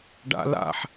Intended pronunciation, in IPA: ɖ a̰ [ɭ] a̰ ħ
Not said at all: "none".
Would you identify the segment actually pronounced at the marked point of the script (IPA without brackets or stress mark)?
l